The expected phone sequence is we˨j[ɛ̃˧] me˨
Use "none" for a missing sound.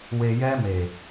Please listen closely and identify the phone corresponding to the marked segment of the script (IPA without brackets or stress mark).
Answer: ɛ˧